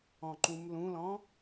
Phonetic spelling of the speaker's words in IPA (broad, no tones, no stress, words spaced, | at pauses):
ɔ̃ǃũmlũlɔ̃